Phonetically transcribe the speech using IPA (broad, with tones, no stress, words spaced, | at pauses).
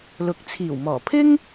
lʊ˨k̚t͡sʰiː˨˩w mɔː˨˩pʰɪ˥ŋ